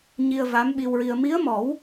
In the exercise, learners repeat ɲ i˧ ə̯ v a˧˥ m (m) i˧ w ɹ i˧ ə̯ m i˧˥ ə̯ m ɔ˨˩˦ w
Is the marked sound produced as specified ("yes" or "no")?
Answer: no